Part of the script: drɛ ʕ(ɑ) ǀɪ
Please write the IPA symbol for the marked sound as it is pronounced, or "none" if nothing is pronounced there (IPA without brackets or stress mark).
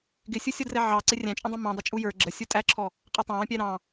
ɑ